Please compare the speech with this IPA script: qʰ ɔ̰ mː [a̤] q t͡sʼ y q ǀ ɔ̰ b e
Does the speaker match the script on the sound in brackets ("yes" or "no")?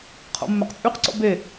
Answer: no